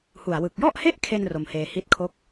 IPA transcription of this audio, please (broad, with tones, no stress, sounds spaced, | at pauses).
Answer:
h u˨˩ a̯ w ɯ˨˩ k̚ j ɔ˥˩ ʔ h e˥˩ ʔ kʰ e˧ n r o˧ m h eː˧ h i˦˥ t̚ kʰ o˦˥ k̚